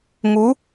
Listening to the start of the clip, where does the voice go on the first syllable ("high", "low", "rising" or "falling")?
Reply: rising